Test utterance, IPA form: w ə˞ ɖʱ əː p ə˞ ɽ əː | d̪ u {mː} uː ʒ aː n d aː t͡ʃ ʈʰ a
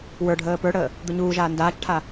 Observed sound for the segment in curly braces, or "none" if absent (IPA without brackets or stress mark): ɲ